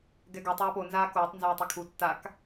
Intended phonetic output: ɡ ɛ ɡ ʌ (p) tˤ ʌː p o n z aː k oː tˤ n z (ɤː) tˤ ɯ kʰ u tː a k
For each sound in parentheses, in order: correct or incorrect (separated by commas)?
incorrect, incorrect